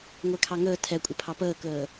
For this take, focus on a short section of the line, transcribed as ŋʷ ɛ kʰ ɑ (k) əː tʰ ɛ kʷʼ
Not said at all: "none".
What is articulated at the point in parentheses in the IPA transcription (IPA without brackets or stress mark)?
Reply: ŋ